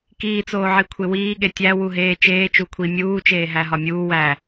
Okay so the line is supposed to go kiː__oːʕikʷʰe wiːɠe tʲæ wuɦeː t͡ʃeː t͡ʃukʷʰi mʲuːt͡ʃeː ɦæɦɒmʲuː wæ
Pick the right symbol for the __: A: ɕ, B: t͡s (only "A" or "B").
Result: B